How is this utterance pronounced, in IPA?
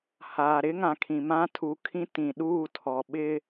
h aː˨ ɾ ɪ˦ ŋ ã˨ kʰ ĩ˨ m ã˦ tʰ u˨ kʰ ĩ˦ t ĩ˨ ɗ uː˦˨ tʰ ɔ˨ ɓ ɪ˦

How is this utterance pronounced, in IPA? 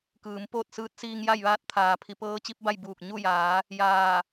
k ɯː˩˧ m p oː˥˨ t̚ s ɯː˧˥ t̚ s iː˧ ŋ j a˥˨ j ʋ aː˥˨ t̚ t̪ʰ aː˩ pʰ i˩˧ p ɤː˧˥ t͡ɕ i˧˥ p̚ b a˥˨ j b uː˧˩ k̚ ɲ u˥˨ j aː˩˧ | j aː˧˩

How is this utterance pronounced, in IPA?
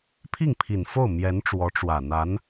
pʰ i˥˩ ŋ pʰ i˨˩ n f o˥˩ ʊ̯ m j ɛ˧˥ n ʈ͡ʂ w ɔ˧˥ ʈ͡ʂ w ä˨˩ n̪ a˧˥ n

